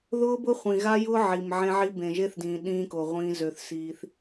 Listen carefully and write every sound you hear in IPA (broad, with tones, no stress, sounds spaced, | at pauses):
ð ʊː˦ b ʊ˦ χʷ ĩ˨ ɣ a˦ j ʊː˦ ʕ i˨ m ʕ ẽ˦ ʕ i˦ b ẽ˨ ʒ e˦ θ d ĩː˨ ɗ ĩː˦ k o˨ ʁʷ ĩː˦ z ø˦ θ s iː˦ θ